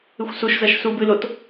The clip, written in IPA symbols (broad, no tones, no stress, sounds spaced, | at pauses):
ɨ xʷ s u ʃ z ɐ ʃ s u b ɨ l o t